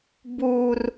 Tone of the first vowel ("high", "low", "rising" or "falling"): high